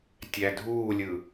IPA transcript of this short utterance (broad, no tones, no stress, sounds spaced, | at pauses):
tʲ æ dʱ uː lʲ ɯ